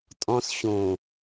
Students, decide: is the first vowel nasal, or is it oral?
nasal